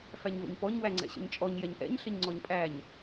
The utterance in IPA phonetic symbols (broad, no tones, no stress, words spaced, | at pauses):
fæɲvə̰ɲpɔɲ wæŋ͡ǀɛ̰ɕə̰ɲt͡ʃʼɔɲ jɛɲʔɛ̰ɲ ɬəɲŋ͡ǀɔɲpʼæɲ